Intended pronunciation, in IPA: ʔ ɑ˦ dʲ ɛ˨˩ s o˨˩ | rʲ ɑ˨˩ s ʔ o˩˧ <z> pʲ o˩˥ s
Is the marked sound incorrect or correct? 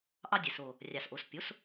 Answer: incorrect